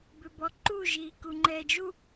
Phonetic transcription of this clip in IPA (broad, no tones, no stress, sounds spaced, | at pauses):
b ʏ b ɔ ǃ u ʒ iː k u ŋ͡ǃ ɛː d͡ʒ u